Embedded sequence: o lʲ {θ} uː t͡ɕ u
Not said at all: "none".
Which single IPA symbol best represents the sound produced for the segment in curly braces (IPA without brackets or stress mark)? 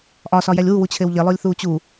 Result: θ